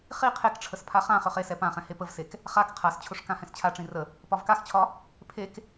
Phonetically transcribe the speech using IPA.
χ i qʰ e k ʈ͡ʂʰ ə s pʰ a χ ã χ ø χ e s ɛ p ã χ ɛ̃ h e p ə v s e k | χ a k qʰ a s t͡ɕʰ ʊ ʂ k ã h ɛ̃ s t͡ɕʰ a ʈ͡ʂ ĩ r ə | p ɒ v k a x t͡ɕʰ ɒ | pʰ e k

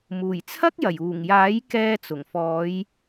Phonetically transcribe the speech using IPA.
m uː˨˩ j t͡sʰ ɐ˥ k̚ j ɐ˨˩ j uː˨˩ ŋ j aː˨˥ j k ɛː˧ t͡s ʊ˨˩ ŋ f ɔː˨˧ j

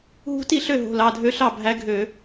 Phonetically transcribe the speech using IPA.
ɦ ṳ˧˥ t i˥˩ ɬ ø˥˩ ɦ o̤˩˧˩ l ɑ˩˧˩ dʱ ø˧˥ ɬ ɑ˥˩ bʱ æ˧˥ ɡʱ ø˧˩˧

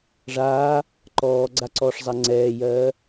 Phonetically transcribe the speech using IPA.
ʐ aː | ǃ ɔː ɡ͡ǀ a ǀ ɔː ʂ zˤ a ŋ͡ǀ ɛː j ɜː

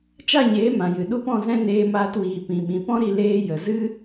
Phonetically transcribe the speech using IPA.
t͡ʃ a˦˨ ɲ eː˨˦ m ã˨ j ɨ˨ ɗ u˦ p ɔ̃˦˨ z ɛ̃˦ n eː˧ m aː˧ t w iː˨ p ĩ˨ ɓ ĩ˨ p ɔ̃˦ ɾ i˧ l eː˧ j ə˨ z ɨ˦

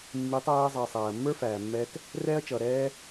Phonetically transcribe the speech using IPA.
mː i˨˦ tˤ æː˧ zˤ ʌː˨ sˤ æː˨ ɐ̯ mː ə˞˦ f æː˨ mː ɛː˧ t | r ɛː˦ ɐ̯ t͡ʃ ʌː˨ ɾ ɛː˦

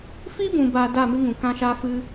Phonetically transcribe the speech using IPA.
f i˦ b ũ˨ b a˨ d a˦˨ m ɨ˦ ŋ ũ˨ k ã˦ ʃ a˦ f ɨ˦

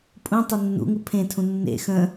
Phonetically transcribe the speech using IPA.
pʼ ũ tˤ u nː ṵ ŋ u pʰ ẽ tʰ ũ nː ḛ x ə̃

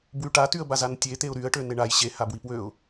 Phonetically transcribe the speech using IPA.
b w y ʈ a t y ə̯ b a z a n tʲ e t̪ e ʊ̯ ɾ y ə̯ ʈ ø n e ɳ a j ɕ e h a b w i p w ø ʊ̯

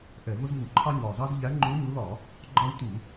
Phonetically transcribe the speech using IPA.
ʔ ɛ˧˩˧ v ʊ˦ z v u˧˩˧ ǃʰ ɑ˦ ɲ ɒ˨˩ z ɑ˦ z ʎ æ˨˦ ŋ͡ǃ u˨˦ ɲ u˨˦ l ɒ˧˩˧ | ɡ͡ǃ ɒ˦ w t u˧˩˧

